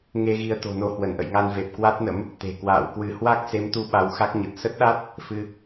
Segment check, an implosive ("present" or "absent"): present